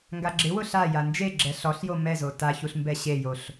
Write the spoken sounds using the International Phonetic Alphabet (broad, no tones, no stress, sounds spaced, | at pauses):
ŋ ɡ a ɡ͡ǁ ɪ w ʊ ɬ a j a n d͡ʒ e ɡ͡ǁ ɛ ɬ ɔ ɬ j o m ɛ z o t a ç u ɬ m b ɛ ɕ e j o ɬ